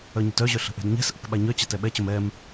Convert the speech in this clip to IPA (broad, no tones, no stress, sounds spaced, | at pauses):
œ ɲ ə̤ t œ ʑ œ ɬ ə̤ ʔ ɛ̤ d ɲ ɛ̤ s ʔ ə̤ k ɓ a ɲ œ t͡ɕ a t ɛ ɓ ɛ t͡ɕ ə m ɛ m